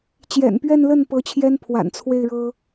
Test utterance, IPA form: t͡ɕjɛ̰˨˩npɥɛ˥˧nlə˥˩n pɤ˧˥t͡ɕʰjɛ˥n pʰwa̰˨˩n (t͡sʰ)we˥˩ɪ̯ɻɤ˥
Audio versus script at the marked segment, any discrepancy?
no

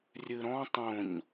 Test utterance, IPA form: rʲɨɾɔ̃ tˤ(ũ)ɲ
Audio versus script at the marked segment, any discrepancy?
yes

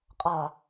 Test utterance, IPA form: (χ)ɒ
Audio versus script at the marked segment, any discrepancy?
yes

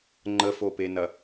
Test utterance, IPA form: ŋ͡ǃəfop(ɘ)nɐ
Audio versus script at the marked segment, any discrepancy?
yes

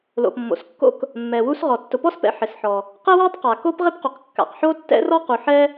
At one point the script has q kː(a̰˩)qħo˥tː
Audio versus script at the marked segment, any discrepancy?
no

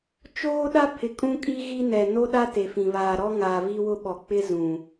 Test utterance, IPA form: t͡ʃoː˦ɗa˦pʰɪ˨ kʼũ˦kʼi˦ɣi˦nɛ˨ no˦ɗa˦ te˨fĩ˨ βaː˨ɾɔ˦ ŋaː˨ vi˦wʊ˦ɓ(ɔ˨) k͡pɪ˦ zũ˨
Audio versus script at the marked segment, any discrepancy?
no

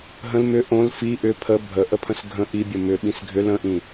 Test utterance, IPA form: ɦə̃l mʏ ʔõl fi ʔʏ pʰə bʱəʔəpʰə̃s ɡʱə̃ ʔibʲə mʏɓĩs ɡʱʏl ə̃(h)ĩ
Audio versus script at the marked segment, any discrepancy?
yes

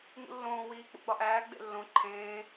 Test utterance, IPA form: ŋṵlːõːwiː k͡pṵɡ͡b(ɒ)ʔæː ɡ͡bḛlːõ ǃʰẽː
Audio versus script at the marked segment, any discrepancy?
no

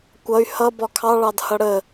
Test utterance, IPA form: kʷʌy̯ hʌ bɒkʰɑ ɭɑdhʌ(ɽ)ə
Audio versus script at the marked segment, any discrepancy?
no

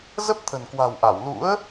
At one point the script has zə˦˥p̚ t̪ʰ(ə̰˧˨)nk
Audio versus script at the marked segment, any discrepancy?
yes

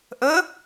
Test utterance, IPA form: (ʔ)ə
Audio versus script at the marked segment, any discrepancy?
no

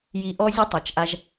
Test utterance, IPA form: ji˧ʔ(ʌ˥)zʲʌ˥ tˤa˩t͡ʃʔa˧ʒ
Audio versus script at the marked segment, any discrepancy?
yes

